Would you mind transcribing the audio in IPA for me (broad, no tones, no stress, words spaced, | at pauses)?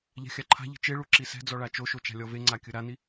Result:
ʎa̤xʲaǃʰa̤ʎi̤ t͡ʃeɭu ǁisɛ̤d͡zɔ ɭat͡ʃoʃo t͡ʃa̤lʲɔveŋ͡ǀa kʲɯɾani